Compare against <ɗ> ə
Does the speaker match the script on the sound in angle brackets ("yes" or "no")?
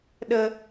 yes